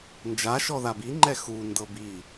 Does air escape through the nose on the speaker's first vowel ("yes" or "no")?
no